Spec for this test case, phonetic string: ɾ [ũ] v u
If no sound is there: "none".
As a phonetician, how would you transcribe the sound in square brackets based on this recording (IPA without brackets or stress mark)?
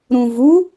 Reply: ũ